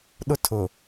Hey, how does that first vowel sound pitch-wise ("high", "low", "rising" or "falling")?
high